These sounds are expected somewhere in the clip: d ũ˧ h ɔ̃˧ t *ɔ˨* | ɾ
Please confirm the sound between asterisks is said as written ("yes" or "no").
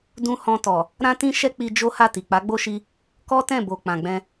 yes